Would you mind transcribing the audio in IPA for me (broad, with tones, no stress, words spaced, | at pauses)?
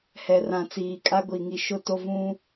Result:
hɛ˨rã˨ t͡siː˨kʼa˦ɡʷi˨ ŋi˨ʃʊ˦to˦ vũ˦